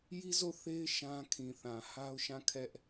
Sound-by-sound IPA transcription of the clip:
ji˦zo˦˨θe˦ɪ̯ ʃã˦kʰĩ˨θã˨ ha˦ʊ̯ʃã˦˨ kʰɛ˦ʔ

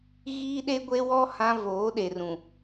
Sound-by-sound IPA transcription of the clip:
ɣiː˦ɗe˦ɡʷe˦wɔ˦ hã˦voː˨˦ɗe˨rũ˨

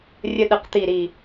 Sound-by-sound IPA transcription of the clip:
rʲə˦ɗə˧˩qt̪i˧˩ɾi˧˩

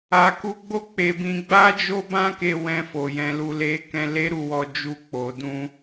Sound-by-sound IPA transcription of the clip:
a˨ku˧ɡ͡bo˦ k͡pe˧bĩ˧ ɡ͡ba˦d͡ʒo˦bã˦ke˧ wɛ̃˧fo˨ jɛ̃˨˦lu˧le˦kɛ̃˦ le˦ɾu˦˨wɔ˧d͡ʒu˧ k͡po˨dũ˧

